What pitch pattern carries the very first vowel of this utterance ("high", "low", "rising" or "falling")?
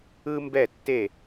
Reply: high